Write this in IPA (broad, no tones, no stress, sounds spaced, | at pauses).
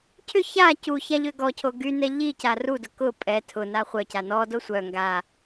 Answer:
cʰ ʏ ç a c u ç a ʎ ø ɡ ɔ cʰ o ɡ y n ɛ ʎ i c a r u d ʊ k ʊ pʼ ɛ tʰ ʊ n a χʷ œ c a n ɔ d o sʷ œ ŋ ɡ a